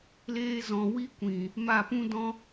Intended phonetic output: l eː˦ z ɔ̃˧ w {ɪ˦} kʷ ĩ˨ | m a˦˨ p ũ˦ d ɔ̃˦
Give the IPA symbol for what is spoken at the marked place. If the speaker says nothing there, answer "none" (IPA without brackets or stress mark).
i˦